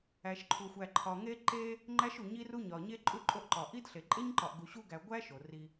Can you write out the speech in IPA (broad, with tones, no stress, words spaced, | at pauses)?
æ˨ʃǃʰu˨xʷæ˨ ǃʰɒ˨ŋe˦ ǃe˦ | ŋ͡ǃæ˦ʃu˨ɲi˦ru˦ ɲɒ˨ɲe˦ ǃʼu˦ ǃʼo˦ʔǃɒ˨ ʔi˦dɬe˨ ǃʼe˦ɲǃɒ˨ʔɡu˨ ɕu˦ɡæ˨ ɡʷæ˦ ʃo˨ri˦